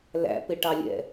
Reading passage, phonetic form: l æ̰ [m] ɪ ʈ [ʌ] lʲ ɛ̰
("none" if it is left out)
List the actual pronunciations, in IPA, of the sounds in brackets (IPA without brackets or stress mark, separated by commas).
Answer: p, ɑ